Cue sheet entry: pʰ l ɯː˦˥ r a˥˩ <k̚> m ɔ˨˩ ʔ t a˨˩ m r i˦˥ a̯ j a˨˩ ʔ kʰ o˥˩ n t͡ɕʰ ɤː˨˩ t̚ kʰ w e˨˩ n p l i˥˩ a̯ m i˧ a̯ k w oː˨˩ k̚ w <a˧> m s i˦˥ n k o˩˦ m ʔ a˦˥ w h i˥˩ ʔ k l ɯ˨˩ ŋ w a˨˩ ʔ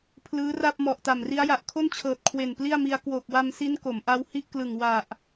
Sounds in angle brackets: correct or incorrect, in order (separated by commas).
incorrect, correct